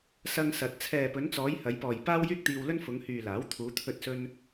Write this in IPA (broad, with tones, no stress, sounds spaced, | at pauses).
s ɐ˧ ŋ s ɐ˨ t̚ t͡sʰ ɛː˨ p ɵ˨˧ n t͡s ɔː˨˧ j h ɐ˨˧ j p ɔː˨ j p aː˥ w j yː˥ k̚ t̪ iː˧ w l ɵ˥ n f ʊ˨˧ ŋ h yː˨ l aː˨˥ w t̪ʰ uː˨˧ t̪ʰ ɵ˧ t̚ s ɵ˧ n